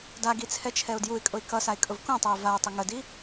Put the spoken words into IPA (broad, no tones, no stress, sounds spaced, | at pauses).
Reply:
d a ɡ i t͡sʰ ɛ t͡ʃʰ ɛ ʊ̯ d j u ɪ̯ kʼ ʊ ɪ̯ k ʌ s a ɪ̯ kʼ ʊ v k ũ tˤ ʌ ɪ̯ v a ʊ̯ tˤ ʊ ŋ ə d i